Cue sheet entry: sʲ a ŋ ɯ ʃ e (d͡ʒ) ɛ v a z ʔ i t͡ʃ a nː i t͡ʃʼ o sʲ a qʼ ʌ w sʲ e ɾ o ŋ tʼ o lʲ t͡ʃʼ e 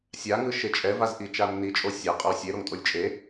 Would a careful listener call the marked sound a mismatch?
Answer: yes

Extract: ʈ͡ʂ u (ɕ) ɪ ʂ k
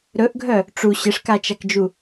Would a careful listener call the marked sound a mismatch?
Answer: no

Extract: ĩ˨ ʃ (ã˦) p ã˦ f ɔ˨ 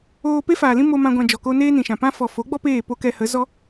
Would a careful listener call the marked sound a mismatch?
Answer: yes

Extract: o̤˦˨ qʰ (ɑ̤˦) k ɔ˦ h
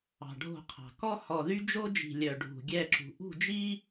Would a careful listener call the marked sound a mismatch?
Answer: yes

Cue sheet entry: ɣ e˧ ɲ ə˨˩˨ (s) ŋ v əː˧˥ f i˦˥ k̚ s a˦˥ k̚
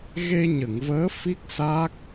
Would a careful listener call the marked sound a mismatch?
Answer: yes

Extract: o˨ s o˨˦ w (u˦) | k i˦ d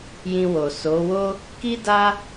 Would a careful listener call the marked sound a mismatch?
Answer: yes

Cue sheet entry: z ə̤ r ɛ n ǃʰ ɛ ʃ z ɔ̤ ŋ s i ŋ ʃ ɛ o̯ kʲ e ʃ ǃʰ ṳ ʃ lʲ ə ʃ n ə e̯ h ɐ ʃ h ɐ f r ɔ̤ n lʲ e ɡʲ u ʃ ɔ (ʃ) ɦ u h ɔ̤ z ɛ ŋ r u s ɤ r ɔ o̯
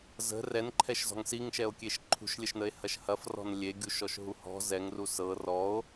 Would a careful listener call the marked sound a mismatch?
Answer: no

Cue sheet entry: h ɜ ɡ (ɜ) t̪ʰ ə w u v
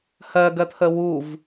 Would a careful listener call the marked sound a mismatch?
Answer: no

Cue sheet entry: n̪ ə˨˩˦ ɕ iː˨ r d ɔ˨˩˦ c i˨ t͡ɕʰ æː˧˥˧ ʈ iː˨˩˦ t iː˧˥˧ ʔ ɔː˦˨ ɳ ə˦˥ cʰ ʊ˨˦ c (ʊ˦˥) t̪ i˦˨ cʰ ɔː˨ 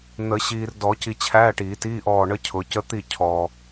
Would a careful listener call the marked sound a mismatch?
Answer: yes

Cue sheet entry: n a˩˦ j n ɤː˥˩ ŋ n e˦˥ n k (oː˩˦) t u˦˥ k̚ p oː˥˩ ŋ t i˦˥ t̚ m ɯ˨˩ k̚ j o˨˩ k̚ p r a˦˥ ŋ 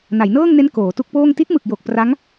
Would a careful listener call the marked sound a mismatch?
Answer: no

